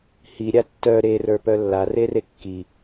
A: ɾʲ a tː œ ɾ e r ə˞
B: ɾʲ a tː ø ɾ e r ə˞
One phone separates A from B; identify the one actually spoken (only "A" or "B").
A